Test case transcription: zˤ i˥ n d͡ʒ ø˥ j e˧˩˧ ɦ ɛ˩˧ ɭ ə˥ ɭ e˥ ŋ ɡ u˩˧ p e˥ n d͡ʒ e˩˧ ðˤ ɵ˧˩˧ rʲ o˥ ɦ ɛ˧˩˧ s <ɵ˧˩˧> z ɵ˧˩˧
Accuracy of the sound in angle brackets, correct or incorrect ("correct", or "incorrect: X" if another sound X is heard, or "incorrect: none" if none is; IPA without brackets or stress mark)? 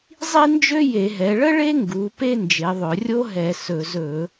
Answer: correct